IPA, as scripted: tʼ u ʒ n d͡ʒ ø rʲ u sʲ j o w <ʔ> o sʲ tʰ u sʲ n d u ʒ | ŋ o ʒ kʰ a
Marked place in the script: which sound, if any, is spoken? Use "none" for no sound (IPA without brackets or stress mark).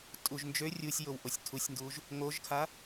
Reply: ʔ